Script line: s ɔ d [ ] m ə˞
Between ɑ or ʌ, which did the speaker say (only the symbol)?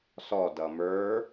ʌ